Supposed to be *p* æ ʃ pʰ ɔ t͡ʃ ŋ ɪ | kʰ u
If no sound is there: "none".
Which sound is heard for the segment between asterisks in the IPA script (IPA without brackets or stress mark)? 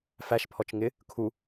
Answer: f